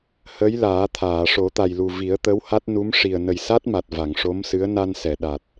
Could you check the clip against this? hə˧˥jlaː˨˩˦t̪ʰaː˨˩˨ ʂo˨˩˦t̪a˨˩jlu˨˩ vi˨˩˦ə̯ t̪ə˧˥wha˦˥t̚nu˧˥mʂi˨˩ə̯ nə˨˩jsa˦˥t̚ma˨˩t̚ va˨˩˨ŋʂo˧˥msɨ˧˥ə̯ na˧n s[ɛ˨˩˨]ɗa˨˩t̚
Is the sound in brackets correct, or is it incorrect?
correct